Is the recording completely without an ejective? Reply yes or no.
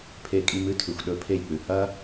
no